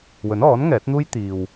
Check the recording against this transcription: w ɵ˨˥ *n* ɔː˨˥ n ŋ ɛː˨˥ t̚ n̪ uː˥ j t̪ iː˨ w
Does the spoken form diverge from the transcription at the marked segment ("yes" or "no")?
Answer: no